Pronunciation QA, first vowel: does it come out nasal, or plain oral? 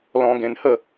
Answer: nasal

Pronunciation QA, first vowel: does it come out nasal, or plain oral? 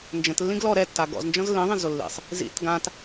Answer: nasal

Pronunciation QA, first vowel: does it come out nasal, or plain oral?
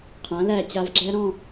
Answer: nasal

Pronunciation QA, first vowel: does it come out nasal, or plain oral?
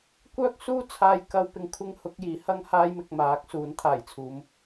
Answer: oral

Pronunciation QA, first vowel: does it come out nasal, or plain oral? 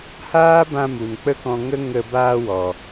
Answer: oral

